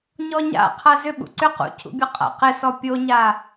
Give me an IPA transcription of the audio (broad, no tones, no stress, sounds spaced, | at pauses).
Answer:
ɲ ɔ ɲ a̰ qʰ a z ʏ ɓ ṵ ǀ ʏ q ṵ cʰ ṵ bʲ ɔ qʼ a̰ q ɪ s ɔ pʲ o ɲ a